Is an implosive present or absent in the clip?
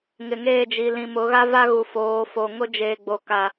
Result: absent